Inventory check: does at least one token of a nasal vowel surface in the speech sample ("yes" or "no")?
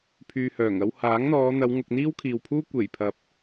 no